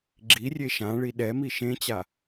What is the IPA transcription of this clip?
ɡ͡ǁ i rʲ e ʃ ã ɭ i ɗ ɛ m i ʃ ẽ t͡ɕ a

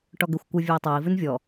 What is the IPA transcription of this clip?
ʈ ɔ ɡ ʏ xʷ kʷ ɨ vʲ ɔ i̯ tˤ o i̯ v ʉ n vʲ ɔ

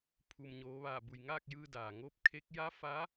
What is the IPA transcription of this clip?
pʰ u˩ m ɲ oː˩˧ ʋ aː˧˩ b u˩ j ŋ aː˥˨ k̚ j ɯː˧ d aː˩ ŋ oː˧˥ p̚ kʰ e˧˥ k̚ j a˧˥ f a˧˥

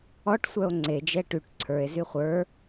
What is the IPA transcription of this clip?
ɔ ʈ sʷ œ o̯ ŋ͡ǀ e d͡ʒ ɛ ʈ y ʈ ǀʰ ə˞ e̯ z y χʷ ə˞

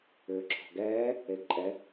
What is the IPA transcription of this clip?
ʏː ǁʰ ɔ̤ ɡ ɛː | e ɡ ǃʼ ɛ

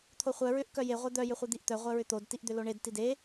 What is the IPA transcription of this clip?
t̪ʰ o χʷ œ ɹ ʏ ʔ k œ j e ʁʷ e d̪ œ j ʏ χʷ i d̪ i ʔ t̪ œ ʁʷ œ ɹ ʏ t̪ o d t i ʔ d̪ ʏ l o ɳ e d t i d e

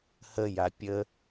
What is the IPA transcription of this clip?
h ə j a pʲ ə

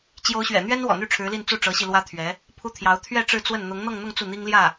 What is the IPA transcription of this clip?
t͡ɕ j o˧˥ ʊ̯ ɕ ɥ ɛ̰˨˩ n̪ ɥ ɛ˥ n w ɔ̰˨˩ n̪ y˥˩ ʈ͡ʂʰ ɻ̩˧˥ l i˥˧ n t͡s u˥˩ ʈ͡ʂ ɤ˧˥ ɕ i˧ l w ä˥ t̪ʰ ɥ ɛ˧˥ | pʰ u˥ t̪ʰ j ɑ˧˥ ʊ̯ t̪ʰ ɥ ɛ˥˧ ʈ͡ʂ ɻ̩˥˧ t͡s w ə˥˩ n n̪ ʊ˧˥ ŋ n̪ ɤ˥˧ ŋ n̪ ʊ˥˧ ŋ t͡s u˥˩ n̪ i˥ ŋ l j ä˥˩

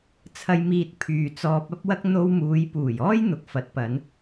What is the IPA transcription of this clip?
t͡sʰ ɐ˧ j m iː˨ t̚ pʰ yː˨ t͡s ɔː˧ p̚ ɐ˥ p̚ w ɐ˥ k̚ n̪ o˧ w m uː˨˧ j p uː˨˩ j ɔː˥ j n̪ ʊ˨ k̚ f ɐ˨˥ t̚ p ɐ˨˧ n

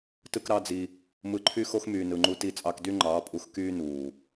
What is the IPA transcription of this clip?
t ɯ˦ k ɾ ɑ˦ d͡z i˧ | m ɯ˧ ǃʰ y˦ x o˦ x m yː˨ n ɯ˨ ŋ͡ǃ u˧ t i˧ t͡sʼ ɑ˧ k d y˦ ŋ͡ǃ ɑː˨˦ pʼ u˧ x k yː˦ n uː˨

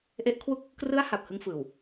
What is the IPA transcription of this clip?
ʔ e˦˥ ʔ kʰ w u˥˩ k̚ | k r ɯ˦˥ a̯ h a˨˩ p̚ h ɯ˦˥ ŋ f ɯː˨˩ w

